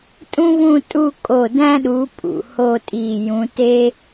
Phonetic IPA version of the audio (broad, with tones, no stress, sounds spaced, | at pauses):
tʼ ũ˥ v ũ˥˧ tʼ u˥˧ kʼ o˧˩ d æ̃˥ ɗ u˨˦ pʼ ṵ˩ h o˥˧ tʼ i˧˩ j ũ˨˦ t e˥